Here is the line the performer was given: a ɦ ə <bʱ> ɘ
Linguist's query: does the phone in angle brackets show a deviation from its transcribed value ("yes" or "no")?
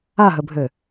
no